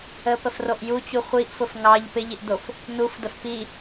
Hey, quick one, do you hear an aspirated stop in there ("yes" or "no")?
no